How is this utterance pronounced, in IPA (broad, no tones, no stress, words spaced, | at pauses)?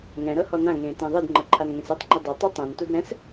ŋɛ̃ɾɤ hɔnãŋẽː tĩðˤɯdŋ͡ǃɤ ǃʰanŋẽsɯtˤŋ͡ǃe dˤɤtˤu tˤɛ̃ntud ɾɛ̃s